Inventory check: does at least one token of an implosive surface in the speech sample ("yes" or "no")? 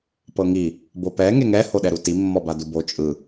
yes